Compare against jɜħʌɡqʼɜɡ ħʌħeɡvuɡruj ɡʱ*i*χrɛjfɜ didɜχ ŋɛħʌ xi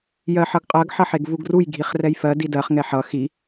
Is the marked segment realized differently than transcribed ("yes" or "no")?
no